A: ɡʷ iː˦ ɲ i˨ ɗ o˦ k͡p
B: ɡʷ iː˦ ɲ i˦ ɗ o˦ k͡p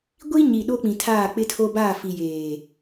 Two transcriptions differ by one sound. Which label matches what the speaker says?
A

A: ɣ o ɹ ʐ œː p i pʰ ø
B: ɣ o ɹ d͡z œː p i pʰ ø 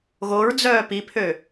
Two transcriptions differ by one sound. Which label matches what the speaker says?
B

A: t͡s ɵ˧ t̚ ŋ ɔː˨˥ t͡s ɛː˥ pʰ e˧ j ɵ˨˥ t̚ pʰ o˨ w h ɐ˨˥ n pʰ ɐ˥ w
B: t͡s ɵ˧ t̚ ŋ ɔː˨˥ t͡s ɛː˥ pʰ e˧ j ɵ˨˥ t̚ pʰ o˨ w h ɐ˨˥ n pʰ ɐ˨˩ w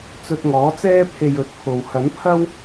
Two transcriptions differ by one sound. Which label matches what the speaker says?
A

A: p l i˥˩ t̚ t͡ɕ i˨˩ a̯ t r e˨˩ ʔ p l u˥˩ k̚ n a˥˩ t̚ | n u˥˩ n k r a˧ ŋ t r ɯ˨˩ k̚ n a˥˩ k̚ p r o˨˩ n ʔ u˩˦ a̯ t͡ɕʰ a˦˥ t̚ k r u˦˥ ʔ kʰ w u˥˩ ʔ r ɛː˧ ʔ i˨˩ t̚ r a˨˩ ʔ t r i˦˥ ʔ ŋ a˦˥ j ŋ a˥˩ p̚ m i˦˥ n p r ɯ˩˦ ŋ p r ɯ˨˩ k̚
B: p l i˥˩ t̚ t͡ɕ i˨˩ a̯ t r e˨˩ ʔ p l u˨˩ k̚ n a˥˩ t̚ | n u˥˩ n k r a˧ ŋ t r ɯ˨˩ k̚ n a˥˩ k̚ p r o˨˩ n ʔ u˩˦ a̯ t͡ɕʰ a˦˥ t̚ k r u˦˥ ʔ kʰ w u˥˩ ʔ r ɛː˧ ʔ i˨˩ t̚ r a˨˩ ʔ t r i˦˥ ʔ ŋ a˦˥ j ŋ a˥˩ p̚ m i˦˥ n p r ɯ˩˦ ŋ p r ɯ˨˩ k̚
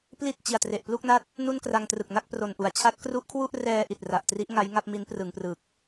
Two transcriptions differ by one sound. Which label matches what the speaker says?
A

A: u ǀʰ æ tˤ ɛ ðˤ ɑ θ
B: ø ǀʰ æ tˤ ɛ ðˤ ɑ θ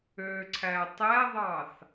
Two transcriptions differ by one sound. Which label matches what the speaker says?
B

